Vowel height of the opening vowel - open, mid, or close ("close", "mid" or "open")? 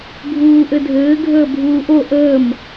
close